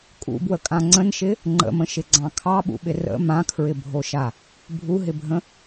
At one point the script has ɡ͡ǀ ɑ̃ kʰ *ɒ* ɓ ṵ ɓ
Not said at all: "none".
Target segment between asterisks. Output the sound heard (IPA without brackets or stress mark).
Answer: ɑ